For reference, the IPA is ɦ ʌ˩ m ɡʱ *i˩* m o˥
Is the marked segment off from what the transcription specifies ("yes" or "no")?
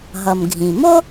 yes